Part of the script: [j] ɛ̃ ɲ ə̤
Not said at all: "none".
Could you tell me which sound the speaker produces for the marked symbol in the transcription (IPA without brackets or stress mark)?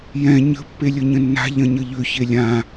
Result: j